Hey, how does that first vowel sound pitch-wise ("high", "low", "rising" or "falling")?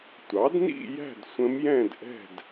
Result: rising